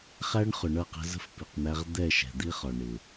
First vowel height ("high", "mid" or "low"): low